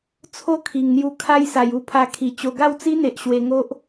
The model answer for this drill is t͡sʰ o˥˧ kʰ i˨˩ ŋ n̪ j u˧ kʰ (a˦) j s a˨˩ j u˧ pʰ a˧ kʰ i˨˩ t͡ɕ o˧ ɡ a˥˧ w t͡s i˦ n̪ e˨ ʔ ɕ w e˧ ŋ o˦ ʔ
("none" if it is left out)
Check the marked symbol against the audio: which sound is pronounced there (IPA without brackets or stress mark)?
a˦